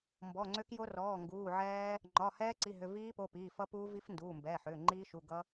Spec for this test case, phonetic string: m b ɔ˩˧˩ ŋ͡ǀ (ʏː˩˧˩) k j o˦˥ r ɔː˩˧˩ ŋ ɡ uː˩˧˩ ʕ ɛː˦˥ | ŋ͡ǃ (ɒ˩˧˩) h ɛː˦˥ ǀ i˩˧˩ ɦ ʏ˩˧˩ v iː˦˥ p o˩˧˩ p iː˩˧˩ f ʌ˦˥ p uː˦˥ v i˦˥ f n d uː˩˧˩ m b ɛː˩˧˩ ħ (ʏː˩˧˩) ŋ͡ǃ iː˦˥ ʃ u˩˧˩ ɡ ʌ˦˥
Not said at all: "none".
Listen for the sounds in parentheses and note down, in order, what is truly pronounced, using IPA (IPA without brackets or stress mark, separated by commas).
ʏː˦˥, ɒ˩˧˩, ʏː˩˧˩